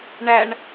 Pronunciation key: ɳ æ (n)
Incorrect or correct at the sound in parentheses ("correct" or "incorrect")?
incorrect